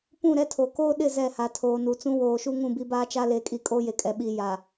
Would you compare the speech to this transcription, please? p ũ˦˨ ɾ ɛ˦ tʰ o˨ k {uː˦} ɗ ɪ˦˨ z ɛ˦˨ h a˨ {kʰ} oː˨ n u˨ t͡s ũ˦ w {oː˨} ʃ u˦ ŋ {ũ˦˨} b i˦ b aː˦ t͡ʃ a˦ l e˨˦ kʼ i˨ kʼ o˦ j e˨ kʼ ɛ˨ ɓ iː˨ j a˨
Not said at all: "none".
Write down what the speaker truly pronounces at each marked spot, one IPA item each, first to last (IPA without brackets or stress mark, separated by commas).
oː˦, tʰ, oː˨, ũ˦˨